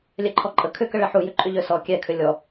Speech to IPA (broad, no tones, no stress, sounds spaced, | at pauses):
lʲ ɛ ǃʰ ɔ ǃʼ ə kʰ ʏ k ə ɭ ɛ ħ u j ʏ ǃʼ ʏ ʎ ø s ɔ kʲ ɛ kʰ ʏ lʲ ɔ